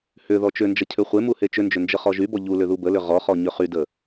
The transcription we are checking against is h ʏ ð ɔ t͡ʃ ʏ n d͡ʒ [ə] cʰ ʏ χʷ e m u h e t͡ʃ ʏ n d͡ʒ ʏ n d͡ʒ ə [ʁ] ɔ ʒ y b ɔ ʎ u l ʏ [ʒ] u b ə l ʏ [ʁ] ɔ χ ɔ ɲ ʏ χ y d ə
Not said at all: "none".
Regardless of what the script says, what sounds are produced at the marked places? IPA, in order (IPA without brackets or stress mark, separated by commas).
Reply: ə, χ, ð, ʁ